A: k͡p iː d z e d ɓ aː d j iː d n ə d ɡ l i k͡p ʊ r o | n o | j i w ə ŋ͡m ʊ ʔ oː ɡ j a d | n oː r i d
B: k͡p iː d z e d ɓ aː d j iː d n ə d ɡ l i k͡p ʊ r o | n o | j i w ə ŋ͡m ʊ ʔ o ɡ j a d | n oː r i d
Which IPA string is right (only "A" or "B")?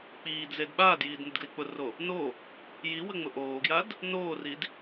A